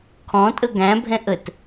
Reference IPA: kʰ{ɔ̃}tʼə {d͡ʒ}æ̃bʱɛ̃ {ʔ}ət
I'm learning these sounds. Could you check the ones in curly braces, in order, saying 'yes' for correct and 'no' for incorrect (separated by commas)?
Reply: yes, no, yes